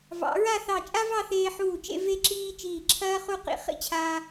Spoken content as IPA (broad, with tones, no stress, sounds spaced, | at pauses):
v ɑ̰˩˧ ɹ a˥˧ θ ɑ˧˩ t͡ʃʼ a˥ v ɑ˥˧ θ eː˧ ħ uː˧˩ t͡ʃ ḛ˥˧ v e˥ ǁ iː˥ t͡ʃ iː˧˩ ǁʰ ɐː˥ χ u˥˧ q ḭ˧ χ ḭ˥ t͡ɕʰ aː˧